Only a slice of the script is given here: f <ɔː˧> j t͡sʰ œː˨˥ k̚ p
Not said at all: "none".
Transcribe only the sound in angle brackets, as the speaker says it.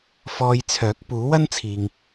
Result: ɔː˧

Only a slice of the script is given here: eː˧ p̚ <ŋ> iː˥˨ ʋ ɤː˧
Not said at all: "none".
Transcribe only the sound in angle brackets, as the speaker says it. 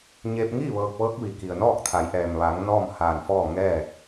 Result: ŋ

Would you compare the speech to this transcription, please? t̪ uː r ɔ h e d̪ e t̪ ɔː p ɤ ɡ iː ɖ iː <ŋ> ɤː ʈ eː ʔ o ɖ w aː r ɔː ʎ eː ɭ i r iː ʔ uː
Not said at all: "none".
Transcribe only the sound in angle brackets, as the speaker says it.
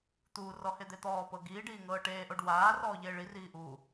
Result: ŋ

